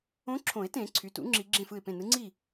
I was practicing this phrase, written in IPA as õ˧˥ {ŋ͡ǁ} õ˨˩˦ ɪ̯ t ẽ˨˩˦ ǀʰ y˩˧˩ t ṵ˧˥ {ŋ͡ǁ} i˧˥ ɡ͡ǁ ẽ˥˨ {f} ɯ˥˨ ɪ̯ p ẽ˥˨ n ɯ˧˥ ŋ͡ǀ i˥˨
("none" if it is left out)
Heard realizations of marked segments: ǁʰ, ŋ͡ǁ, f

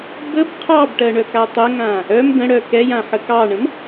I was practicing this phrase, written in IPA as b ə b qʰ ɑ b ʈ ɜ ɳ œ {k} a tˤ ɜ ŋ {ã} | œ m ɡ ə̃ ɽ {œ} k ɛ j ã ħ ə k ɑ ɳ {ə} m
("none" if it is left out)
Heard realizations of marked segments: k, ã, œ, ə̃

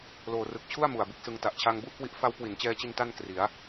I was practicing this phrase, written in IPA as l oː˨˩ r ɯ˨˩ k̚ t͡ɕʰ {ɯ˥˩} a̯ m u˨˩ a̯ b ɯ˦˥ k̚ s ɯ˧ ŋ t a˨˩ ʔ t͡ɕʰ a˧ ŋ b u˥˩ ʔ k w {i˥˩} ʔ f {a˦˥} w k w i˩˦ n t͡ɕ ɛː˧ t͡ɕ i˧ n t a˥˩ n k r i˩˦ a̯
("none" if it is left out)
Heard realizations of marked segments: u˥˩, i˦˥, a˦˥

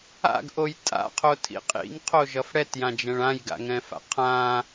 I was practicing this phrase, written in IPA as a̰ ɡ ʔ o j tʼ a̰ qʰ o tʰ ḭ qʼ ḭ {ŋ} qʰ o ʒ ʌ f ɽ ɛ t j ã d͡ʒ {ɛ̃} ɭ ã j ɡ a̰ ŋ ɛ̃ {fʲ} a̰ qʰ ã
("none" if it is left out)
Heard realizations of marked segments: ŋ, ɛ̃, f

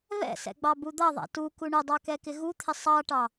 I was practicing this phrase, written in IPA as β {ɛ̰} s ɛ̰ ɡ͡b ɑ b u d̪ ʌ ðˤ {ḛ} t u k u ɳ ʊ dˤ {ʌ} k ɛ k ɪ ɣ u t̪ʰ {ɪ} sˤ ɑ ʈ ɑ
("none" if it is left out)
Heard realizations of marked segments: ɛ̰, ɛ̰, ɑ, ɪ

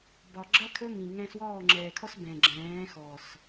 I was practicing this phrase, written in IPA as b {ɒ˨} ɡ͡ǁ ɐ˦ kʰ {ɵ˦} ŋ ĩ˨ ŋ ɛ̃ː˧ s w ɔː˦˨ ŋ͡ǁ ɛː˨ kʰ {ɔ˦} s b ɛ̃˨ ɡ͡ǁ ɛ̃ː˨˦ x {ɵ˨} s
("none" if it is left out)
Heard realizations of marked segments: ɒ˨, ɵ˦, ɔ˦, ɔ˨

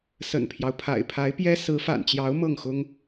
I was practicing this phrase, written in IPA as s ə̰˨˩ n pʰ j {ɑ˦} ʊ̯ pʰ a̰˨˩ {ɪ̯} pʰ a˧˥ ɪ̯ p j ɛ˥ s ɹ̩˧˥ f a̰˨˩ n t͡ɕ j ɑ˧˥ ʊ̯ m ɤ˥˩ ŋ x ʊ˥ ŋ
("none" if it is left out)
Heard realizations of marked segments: ɑ˦, ɪ̯

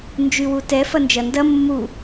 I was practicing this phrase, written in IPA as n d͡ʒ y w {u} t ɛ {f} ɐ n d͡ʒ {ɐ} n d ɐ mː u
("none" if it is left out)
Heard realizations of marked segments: u, f, ɐ

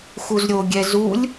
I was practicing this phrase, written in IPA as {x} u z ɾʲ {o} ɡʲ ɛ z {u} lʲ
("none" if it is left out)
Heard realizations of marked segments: x, o, u

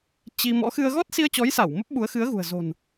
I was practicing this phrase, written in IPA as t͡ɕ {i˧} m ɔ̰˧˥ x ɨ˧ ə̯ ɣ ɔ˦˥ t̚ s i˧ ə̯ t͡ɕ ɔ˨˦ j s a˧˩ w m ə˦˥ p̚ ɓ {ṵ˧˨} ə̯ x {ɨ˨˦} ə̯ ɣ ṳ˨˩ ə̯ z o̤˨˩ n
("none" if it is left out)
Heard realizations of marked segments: i˧, u˨˦, ɨ˨˦

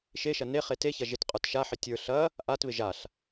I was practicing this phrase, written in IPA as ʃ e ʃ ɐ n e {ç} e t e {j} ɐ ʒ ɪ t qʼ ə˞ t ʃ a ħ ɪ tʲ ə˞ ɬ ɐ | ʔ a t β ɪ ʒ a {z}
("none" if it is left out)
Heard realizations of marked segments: χ, ç, ɬ

